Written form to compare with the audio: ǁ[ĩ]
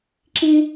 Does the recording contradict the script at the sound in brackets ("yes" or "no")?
no